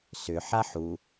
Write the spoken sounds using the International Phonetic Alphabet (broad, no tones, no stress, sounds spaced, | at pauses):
s ʏ ħ a ħ u